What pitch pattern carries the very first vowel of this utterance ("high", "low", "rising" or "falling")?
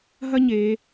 high